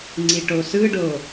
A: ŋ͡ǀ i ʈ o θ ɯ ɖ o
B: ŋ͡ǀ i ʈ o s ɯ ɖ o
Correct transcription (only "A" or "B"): B